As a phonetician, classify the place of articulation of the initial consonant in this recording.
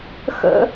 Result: velar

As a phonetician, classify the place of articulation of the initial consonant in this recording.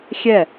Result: velar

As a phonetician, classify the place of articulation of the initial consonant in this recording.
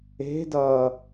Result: alveolar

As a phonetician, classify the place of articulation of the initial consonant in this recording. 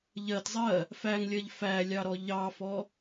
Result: palatal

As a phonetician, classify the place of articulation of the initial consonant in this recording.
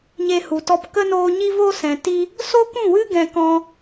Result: palatal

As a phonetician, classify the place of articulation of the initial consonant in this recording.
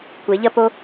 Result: velar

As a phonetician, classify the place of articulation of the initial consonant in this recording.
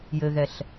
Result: palatal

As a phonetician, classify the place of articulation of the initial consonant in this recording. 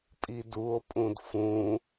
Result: labial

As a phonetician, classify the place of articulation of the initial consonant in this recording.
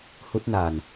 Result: glottal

